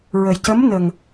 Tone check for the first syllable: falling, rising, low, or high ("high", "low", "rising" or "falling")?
low